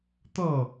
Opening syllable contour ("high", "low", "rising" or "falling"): falling